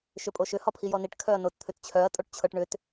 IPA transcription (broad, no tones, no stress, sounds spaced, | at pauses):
ʃ ʏ pʼ o ʃ ʏ h ɒ pʰ i j ɔ n i ʈ kʰ œ ɐ̯ n o t t̪ʰ ʏ t t͡ɕʰ œ ɐ̯ tʼ o ʈ t͡ɕʰ ɤ ʈ ɳ ʏ t